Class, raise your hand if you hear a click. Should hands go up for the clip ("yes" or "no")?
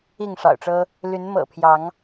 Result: no